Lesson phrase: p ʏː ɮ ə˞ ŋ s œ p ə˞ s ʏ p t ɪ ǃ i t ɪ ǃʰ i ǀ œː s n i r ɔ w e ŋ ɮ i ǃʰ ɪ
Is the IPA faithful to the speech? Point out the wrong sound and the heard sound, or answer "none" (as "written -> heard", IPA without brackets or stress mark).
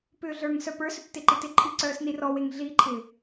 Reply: none